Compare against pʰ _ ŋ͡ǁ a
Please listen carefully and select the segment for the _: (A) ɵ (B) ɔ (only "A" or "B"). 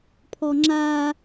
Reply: B